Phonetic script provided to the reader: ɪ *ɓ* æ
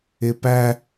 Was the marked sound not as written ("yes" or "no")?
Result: yes